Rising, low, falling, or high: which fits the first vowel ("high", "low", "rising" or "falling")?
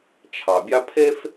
low